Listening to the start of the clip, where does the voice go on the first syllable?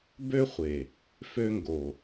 high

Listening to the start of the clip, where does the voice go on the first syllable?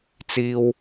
high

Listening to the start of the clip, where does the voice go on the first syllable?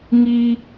high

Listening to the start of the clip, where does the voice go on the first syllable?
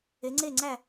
rising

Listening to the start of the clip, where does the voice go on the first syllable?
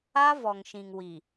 high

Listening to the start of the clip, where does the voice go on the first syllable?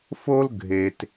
high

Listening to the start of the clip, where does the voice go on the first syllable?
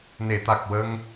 low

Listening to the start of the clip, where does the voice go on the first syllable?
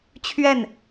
falling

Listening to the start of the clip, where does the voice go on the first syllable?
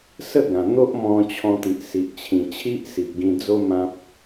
falling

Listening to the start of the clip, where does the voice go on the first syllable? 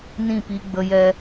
falling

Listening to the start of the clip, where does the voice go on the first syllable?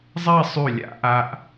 falling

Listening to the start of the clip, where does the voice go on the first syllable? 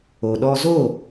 low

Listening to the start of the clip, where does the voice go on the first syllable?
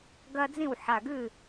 high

